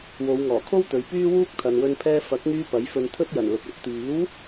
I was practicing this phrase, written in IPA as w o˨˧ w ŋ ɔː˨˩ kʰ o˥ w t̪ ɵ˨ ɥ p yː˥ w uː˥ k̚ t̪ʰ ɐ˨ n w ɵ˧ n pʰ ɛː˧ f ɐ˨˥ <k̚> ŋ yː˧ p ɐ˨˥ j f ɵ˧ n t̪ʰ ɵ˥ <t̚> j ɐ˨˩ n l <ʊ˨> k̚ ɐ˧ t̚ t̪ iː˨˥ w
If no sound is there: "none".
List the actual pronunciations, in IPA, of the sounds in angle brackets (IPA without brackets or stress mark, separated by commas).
k̚, t̚, ʊ˨